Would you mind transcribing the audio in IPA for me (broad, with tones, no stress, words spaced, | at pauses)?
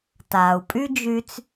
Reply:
taː˩u̯pʼy˥d͡ʒy˧t͡s